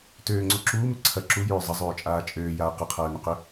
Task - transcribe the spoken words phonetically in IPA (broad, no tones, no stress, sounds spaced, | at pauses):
t øː ŋ͡ǀ o ǁ uː m ʏ ǀʰ ɐ ǁ u j ʏː zˤ ɐ zˤ øː t͡ʃʼ aː t͡ʃʼ øː j aː q ɐ qʰ ɐː n ʏ q ʏ